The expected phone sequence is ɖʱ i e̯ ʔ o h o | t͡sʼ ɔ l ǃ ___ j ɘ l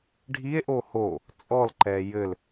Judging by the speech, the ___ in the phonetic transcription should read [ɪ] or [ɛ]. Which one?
ɛ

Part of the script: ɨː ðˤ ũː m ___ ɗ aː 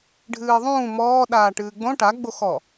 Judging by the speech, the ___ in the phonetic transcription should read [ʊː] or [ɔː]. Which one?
ɔː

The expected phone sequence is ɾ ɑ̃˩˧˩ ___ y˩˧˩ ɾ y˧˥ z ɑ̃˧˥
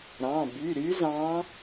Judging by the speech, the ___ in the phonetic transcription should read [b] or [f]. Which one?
b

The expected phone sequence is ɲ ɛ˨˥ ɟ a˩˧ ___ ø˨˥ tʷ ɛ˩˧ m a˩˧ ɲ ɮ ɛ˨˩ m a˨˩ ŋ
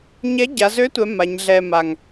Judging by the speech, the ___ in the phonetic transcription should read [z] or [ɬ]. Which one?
z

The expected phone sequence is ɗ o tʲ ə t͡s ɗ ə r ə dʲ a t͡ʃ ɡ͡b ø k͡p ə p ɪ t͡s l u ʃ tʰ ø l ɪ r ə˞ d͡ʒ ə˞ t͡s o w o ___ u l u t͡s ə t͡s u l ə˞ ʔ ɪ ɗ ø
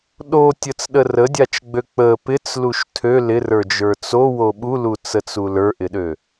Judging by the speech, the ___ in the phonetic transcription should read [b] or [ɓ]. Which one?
ɓ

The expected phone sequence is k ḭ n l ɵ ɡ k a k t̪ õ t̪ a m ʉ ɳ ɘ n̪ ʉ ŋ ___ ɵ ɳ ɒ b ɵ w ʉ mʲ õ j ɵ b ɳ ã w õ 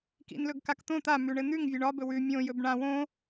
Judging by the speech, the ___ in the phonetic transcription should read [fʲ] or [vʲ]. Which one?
vʲ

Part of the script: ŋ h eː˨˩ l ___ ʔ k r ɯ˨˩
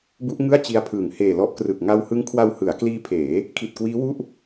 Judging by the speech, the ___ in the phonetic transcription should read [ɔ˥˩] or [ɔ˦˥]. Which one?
ɔ˦˥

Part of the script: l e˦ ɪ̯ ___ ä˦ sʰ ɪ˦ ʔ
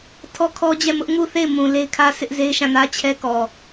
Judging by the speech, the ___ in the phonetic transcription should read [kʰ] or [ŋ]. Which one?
kʰ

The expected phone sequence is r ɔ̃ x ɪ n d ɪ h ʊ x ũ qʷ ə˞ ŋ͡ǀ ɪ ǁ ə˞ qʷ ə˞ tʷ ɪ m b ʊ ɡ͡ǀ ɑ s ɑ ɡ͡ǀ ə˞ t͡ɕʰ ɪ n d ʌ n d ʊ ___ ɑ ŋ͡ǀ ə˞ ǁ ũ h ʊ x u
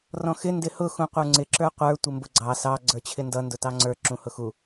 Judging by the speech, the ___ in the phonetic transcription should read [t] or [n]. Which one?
t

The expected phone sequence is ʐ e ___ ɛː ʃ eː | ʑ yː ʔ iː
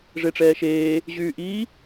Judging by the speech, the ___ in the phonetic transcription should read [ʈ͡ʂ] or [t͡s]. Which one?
ʈ͡ʂ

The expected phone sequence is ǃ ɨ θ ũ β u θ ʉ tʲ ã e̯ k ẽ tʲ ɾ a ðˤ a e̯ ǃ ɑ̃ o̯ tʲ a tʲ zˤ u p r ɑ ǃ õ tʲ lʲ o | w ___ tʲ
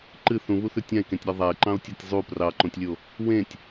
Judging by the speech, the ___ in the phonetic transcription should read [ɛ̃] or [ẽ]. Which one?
ẽ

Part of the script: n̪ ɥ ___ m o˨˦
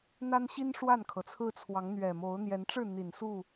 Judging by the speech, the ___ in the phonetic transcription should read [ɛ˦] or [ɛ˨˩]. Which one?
ɛ˨˩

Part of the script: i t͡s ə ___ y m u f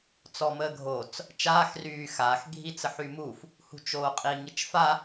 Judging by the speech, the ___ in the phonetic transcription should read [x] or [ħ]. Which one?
ħ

